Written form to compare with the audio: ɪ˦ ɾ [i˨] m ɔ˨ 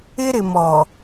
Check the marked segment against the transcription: incorrect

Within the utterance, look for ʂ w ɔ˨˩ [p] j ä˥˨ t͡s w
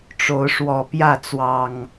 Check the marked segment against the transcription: correct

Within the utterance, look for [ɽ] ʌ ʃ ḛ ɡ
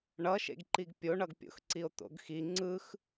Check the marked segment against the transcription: incorrect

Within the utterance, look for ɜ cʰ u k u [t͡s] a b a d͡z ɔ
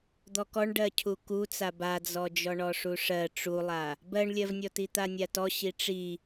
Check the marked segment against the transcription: correct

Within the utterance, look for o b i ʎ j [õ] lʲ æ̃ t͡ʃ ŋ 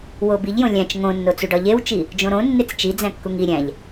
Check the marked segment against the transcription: correct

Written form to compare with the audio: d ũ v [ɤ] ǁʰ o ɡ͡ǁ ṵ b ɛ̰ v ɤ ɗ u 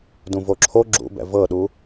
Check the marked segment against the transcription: incorrect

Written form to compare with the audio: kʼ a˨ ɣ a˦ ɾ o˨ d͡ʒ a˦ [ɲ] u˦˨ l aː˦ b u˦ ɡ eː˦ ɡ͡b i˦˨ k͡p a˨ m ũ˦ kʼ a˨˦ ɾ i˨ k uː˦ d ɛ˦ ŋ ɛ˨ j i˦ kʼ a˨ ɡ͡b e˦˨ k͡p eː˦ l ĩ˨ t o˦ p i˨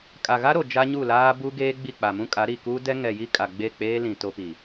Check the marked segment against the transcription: correct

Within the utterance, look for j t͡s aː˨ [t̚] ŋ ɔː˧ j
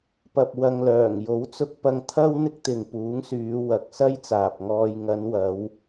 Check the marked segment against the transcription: incorrect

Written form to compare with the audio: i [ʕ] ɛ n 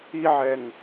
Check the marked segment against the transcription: correct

